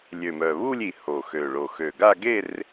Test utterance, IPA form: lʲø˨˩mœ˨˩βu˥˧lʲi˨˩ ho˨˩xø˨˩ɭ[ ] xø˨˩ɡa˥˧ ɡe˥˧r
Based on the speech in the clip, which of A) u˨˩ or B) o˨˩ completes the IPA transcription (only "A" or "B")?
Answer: B